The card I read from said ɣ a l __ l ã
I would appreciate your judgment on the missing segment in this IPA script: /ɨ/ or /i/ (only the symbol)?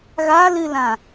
ɨ